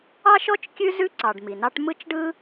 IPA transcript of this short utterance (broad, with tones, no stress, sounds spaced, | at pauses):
ɑ˥ ʃ ɔ˥ t͡ʃ kʲ ʉ˥ z ʉ˥ ǀ ɑ˩ ɖ m i˩ n ɑ˥ ʈ m ɯ˥ t͡ʃ ɖ ɯ˥